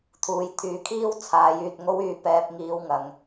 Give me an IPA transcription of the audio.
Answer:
t̪ʰ uː˨ j t̪ʰ yː˨˥ kʰ iː˥ w t͡sʰ aː˨˧ j yː˨ t̚ ŋ o˥ w yː˧ p ɛː˧ p̚ ŋ iː˧ w ŋ ɐ˨˧ ŋ

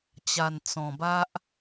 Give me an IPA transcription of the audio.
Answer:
t͡ɕ a˨˩ n t͡s ɔ̃˨˩ b a˦ ʔ

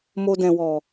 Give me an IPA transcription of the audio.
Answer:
m o˧ d ɛ̃˨ w ɔ˨

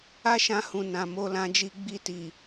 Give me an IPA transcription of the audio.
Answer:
a˦ ʃ ã˧ h ũ˨ n ã˨ m o˧ l ã˧ d͡ʒ i˧ ɡ͡b i˧ t i˨

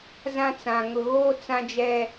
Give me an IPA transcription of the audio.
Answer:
z ã˦ t͡s ã˨ ŋ ʊ˨ ɣ oː˦ t͡s ã˦ d͡ʒ ɛ˦

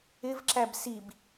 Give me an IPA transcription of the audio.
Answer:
ɪ v ǁ æ b s i b

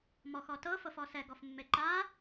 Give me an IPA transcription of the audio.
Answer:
m ɔ x ɔ t ɤ f ɤ f ɔ s ɛ ɡ ɔ f mː e ǃ a

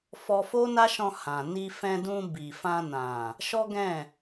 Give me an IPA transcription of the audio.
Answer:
f ɔ˧ f o˦ n a˦ ʃ ɔ̃˧ h ã˨ n i˧ f ɛ̃˧ d ũ˧ b i˨ f ã˧ n ã˨ | ʃ ɔ˦ ɡ ɛ̃˦˨

